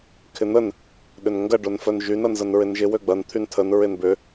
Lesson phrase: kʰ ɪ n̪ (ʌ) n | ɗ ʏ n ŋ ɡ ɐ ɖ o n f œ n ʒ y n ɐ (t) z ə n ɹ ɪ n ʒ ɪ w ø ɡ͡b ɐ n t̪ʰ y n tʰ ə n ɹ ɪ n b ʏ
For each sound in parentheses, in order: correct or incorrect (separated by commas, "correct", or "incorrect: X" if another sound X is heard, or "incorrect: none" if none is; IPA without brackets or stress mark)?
incorrect: ə, incorrect: n